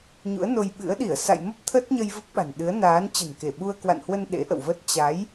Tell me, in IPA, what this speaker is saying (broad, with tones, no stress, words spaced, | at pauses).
ɲṵ˧˥ə̯no˧jɓɨ̰˧˥ə̯ ɗi˧˩ə̯sa̰˧˨jmə˦˥p̚ t̪ʰə˦˥t̚ɲə˧j və˦˥p̚ɓa̤˨˩n ɗɨ˨˦ə̯ naː˨˦n t͡ɕə̤˨˩nke˧˩ ɓu˧ə̯kwa̰˧˨nhwə˧n ɗḛ˧˥ʔə̰˧˨wvə˦˥t̚ t͡ɕa˨˦j